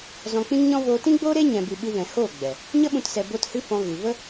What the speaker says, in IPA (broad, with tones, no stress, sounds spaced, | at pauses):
z ɔ̃˧ k͡p ĩ˦ ŋ ɲ ɔ̃˦ v oː˧ t ĩ˦ ɡ͡b oː˦ ɾ e˦ ɲ ɛ̃˧ b ɨ˧ ɓ ɨ˧ v ɛ̃˨ h oː˦˨ ɡ͡b ɛ˨ | ɲ ə˦ ɓ ũ˧ t s ɛ˧ b o˦ t h ɨ˦ f ɔ̃˧ ɣ ɨ˨ v ə˦